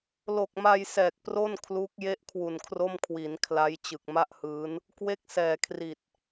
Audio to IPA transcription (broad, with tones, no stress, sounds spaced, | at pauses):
l o˨˩ k̚ m a˧ j s ɛː˨˩ k̚ p r o˥˩ n kʰ l uː˦˥ k̚ j e˥˩ ʔ kʰ w u˨˩ n kʰ r o˥˩ m kʰ w i˩˦ n kʰ l a˦˥ j t͡ɕ ɯ˨˩ k̚ m a˥˩ ʔ h ɯː˦˥ n | k w e˥˩ k̚ s ɛː˨˩ kʰ r i˨˩ t̚